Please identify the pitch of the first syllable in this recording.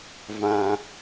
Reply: high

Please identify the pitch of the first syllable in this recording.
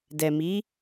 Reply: low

